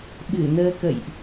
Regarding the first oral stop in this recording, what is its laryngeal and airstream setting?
implosive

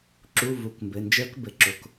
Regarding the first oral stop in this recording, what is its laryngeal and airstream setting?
click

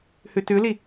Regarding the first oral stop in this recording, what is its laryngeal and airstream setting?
plain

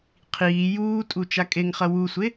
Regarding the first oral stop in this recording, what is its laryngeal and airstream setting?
aspirated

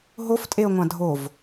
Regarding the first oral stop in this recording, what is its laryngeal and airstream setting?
ejective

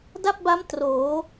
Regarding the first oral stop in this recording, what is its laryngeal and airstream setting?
plain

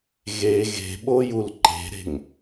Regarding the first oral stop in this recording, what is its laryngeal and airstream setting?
implosive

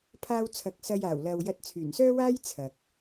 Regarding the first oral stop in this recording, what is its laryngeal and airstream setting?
aspirated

